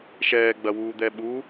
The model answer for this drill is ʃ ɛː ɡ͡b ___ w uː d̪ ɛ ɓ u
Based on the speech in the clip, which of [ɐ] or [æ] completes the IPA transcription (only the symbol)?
ɐ